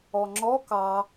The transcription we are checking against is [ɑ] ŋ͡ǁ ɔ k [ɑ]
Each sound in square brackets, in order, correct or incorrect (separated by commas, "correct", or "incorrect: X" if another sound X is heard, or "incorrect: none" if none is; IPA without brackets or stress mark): incorrect: ɔ, correct